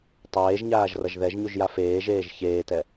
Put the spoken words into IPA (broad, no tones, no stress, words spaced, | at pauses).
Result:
tˤeːʒɲaːʒ rʌʒðɛʒɲuʒ jafeːʒeːʒ çeːtɛ